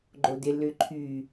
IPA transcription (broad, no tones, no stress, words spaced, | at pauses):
ɡ͡ǃodɪ lʏǃʰy